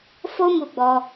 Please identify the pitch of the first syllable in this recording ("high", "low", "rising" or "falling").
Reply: high